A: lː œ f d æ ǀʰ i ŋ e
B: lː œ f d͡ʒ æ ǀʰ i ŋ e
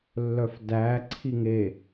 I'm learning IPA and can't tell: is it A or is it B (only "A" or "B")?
A